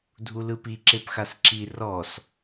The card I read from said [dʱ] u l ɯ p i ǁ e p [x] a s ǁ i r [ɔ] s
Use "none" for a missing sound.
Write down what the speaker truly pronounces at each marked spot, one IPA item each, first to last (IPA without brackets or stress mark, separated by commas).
dʱ, x, ɔ